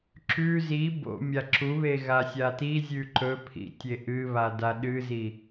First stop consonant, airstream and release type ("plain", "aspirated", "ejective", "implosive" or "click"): click